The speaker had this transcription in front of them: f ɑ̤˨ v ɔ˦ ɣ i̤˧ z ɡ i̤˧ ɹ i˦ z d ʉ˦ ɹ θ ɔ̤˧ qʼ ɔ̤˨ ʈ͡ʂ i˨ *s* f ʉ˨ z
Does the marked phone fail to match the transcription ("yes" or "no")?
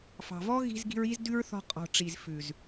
yes